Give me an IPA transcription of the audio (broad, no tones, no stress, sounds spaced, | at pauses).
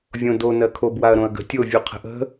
vʲ õ d o n ɜ kʰ o b w a ɐ̯ ɾ õ ɐ̯ ɡ ə̤ tʲ o vʲ u qʰ ə̤ ʔ ə̤